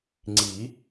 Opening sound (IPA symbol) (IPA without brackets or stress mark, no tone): ŋ͡ǀ